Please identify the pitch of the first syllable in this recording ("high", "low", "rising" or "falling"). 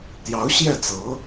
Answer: rising